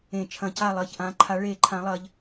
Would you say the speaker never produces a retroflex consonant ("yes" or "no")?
no